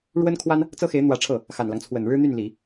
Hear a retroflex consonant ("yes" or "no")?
yes